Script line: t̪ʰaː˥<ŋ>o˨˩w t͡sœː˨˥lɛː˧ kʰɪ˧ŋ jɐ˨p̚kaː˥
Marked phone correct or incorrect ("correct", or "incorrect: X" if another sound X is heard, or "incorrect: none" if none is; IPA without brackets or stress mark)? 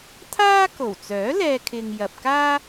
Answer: incorrect: k